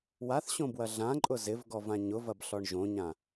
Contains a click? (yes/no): yes